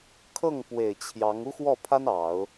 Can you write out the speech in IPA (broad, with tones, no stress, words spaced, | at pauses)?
kʰɤ˥˩ŋpwe˨˩ɪ̯ t͡ɕʰjɑ˧˥ŋ u˥xwɔ˥˩pʰa˥n ɑ˨˩˦ʊ̯